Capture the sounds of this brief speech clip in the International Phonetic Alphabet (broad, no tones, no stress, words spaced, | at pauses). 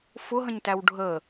fʊɦə̃ɲtæw ɖʱə